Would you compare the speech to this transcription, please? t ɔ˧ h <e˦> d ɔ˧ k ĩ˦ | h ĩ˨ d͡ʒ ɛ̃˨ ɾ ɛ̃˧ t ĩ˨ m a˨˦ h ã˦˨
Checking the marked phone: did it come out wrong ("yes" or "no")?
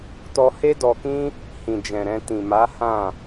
no